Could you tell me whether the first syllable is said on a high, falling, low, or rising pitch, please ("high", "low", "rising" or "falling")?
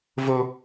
high